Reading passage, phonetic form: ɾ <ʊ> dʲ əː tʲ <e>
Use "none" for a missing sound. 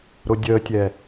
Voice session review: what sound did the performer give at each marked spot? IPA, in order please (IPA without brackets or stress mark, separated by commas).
ʊ, ɛ